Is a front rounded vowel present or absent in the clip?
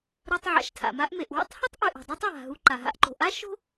absent